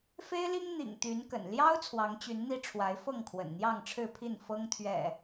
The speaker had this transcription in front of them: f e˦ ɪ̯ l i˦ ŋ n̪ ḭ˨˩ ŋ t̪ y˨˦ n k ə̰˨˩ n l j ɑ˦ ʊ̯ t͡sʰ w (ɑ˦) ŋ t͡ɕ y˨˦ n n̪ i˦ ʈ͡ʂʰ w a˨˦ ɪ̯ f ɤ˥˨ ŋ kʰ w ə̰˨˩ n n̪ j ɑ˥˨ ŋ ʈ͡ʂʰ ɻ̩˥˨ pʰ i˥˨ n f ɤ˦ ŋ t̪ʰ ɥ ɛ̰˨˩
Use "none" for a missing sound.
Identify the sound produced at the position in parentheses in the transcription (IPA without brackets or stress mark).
ɑ˨˦